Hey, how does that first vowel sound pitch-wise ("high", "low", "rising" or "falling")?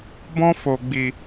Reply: high